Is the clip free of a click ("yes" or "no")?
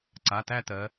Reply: no